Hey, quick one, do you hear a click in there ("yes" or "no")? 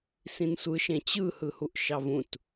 no